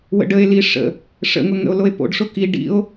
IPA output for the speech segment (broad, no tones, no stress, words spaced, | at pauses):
wə̰ɖəe̯li ʂə̰ | ʂə̰ŋʊ ŋə̰o̯loe̯po̰ɖʂʊ ki ɖḭo̯